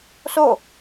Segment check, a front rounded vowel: absent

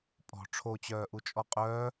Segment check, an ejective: present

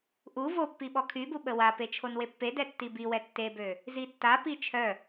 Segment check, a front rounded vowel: present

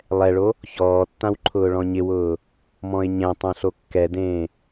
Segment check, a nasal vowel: present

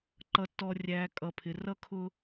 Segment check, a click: present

